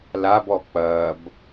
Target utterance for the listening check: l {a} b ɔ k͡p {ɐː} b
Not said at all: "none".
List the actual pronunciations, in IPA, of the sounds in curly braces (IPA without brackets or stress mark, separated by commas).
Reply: a, ɐː